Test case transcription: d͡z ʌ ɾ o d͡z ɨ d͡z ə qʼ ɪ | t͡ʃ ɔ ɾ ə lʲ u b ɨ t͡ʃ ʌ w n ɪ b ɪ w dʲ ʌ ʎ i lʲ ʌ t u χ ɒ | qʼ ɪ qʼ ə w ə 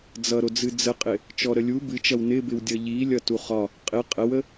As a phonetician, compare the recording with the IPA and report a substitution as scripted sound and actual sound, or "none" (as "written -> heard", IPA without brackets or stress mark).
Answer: none